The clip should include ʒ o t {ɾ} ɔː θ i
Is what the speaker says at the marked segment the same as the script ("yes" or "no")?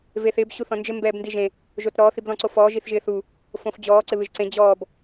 yes